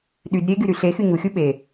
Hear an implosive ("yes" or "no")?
yes